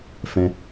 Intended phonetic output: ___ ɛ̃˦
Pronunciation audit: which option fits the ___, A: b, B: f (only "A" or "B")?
B